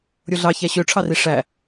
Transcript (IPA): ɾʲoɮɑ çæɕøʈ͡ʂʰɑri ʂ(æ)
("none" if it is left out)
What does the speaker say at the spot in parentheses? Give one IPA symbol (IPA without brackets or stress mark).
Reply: æ